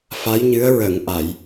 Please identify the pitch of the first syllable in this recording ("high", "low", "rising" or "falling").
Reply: rising